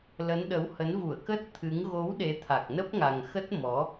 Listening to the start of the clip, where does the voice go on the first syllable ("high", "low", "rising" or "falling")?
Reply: rising